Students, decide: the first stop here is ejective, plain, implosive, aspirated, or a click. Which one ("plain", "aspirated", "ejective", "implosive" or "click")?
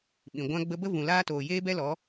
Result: implosive